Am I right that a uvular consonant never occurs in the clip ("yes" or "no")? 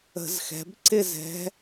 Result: yes